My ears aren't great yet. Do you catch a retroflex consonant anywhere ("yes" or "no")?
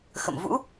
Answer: no